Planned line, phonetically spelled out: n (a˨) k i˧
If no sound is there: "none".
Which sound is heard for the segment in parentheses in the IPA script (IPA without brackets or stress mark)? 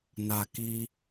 a˨